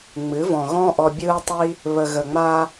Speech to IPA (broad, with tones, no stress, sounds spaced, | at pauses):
ŋ͡m ɨ˨˦ v ɔ̃˨ ɣ ɔ̃˦ ʔ ɔ˧ bʲ ɯː˦ tˤ i˦ | β ə˨ ɣ ə˨ ŋ͡m a˧